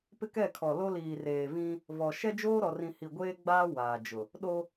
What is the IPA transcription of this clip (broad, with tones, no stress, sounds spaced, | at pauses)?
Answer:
p ɪ˦ k ɛ˦˨ kʰ ɔ˨ l o˦ l iː˨ r eː˨ v ĩ˦ | v ɔ˨ ʃ ɛ˦ d͡ʒ oː˦ ɾ ɔ˨ r ĩ˨ h i˨ ɡʷ eː˦ ɡ͡b aː˦ w aː˨ d͡ʒ ʊ˨ | ɗ o˦